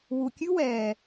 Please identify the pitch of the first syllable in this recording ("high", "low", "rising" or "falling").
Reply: low